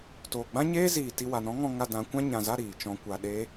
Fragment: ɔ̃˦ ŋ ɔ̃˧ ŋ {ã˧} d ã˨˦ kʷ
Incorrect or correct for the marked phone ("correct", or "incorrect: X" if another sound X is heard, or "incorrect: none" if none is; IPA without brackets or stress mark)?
incorrect: a˧